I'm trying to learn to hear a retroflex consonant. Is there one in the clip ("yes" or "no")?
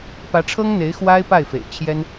yes